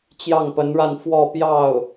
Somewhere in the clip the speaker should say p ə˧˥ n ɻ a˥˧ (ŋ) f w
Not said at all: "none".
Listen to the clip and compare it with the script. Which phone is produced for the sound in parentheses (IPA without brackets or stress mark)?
n